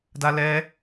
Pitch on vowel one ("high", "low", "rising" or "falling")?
high